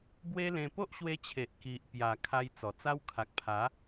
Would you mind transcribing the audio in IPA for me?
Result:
b w e˦ l ẽ˧ p o˦ ʔ ɕ w e˧ t͡ɕʰ e˨ ʔ k i˨ ʔ p j a˨˩ kʰ a˧ j t͡s ɔ˨˩ t͡s a˦ w kʰ a˨ k̚ pʰ a˨˦

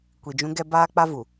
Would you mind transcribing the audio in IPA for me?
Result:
kʷ i˨ d͡ʒ ũ˦ ɡ ɛ˦ b aː˦ k͡p a˦ v u˨

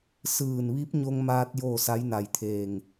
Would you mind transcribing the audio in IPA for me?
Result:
s ɯː˧˩ n ʋ i˧˥ p̚ ɲ o˧ ŋ m aː˧ t̚ j oː˥˨ s a˧˥ j n a˧˩ j t̪ʰ eː˧˩ ŋ

